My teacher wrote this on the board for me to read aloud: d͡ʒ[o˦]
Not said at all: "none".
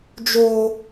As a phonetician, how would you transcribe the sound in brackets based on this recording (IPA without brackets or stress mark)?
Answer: o˦